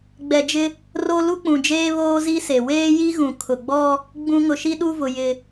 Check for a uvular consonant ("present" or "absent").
absent